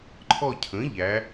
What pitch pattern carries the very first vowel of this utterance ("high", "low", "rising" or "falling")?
falling